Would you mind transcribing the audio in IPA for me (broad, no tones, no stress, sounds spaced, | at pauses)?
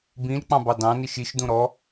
b ĩ l k͡p ɑ̃ b ɑ d ɑ̃ n i ʃ i ʃ d ũ ɾ ɔ